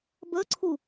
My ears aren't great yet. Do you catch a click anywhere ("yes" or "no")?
yes